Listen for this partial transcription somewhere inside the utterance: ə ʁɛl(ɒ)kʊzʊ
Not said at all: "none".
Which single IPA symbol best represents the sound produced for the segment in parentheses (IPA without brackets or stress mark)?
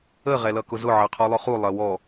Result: ʌ